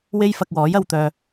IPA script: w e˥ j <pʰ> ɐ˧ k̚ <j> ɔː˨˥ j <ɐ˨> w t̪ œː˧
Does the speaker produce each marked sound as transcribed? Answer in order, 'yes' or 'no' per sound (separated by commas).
no, no, no